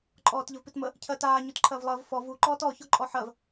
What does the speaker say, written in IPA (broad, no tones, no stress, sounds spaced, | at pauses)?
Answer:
ǃʼ ɔː t ʎ ə v p i t m ə | cʰ ɜ t aː ɲ u t ǃʰ ɜ v lˠ ɜ v f ɔ v u ǃ ɔː t ɔ ç ɔ ǃʼ ɔ ħ ɜ v